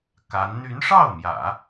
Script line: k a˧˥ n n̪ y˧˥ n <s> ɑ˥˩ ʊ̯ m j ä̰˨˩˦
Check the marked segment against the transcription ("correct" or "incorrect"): incorrect